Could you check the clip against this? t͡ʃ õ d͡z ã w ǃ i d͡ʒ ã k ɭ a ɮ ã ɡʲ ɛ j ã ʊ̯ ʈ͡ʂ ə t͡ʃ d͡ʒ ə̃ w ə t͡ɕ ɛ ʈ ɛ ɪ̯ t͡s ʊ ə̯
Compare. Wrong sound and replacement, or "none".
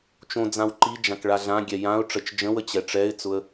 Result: ʈ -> ʈ͡ʂ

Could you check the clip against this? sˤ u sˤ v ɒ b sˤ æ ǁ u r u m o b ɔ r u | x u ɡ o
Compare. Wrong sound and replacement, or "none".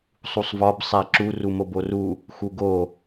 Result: ɔ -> o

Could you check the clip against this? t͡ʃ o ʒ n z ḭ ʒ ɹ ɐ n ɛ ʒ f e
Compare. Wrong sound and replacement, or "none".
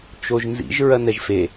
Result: none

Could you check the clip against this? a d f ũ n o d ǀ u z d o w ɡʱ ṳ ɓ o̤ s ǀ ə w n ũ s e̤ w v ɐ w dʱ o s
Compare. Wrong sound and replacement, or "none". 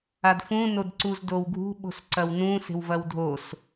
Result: ə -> ɐ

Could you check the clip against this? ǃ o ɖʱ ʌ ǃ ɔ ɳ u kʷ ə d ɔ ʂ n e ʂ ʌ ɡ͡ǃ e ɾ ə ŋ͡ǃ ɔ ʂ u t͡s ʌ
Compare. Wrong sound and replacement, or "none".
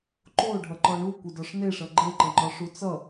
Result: ɾ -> ǃ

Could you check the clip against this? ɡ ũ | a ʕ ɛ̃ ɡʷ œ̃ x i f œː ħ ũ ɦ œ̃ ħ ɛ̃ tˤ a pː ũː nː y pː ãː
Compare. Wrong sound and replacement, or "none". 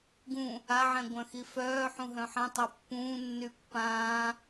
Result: none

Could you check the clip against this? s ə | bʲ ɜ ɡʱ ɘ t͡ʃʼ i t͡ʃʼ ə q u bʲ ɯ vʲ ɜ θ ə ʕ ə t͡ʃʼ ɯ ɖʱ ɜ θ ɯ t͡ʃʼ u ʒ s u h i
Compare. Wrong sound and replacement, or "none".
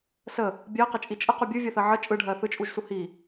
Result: ɡʱ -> q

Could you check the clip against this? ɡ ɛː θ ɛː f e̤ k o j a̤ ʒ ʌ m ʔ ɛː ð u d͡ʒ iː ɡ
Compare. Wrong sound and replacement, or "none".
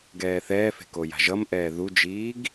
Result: none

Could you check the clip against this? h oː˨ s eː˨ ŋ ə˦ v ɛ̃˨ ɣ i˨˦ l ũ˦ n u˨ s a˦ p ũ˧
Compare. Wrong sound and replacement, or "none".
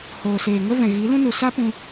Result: none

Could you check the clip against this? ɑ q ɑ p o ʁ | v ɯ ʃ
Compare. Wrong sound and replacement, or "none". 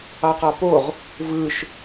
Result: none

